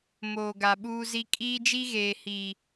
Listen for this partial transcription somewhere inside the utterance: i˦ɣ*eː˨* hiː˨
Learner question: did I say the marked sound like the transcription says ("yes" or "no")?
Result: yes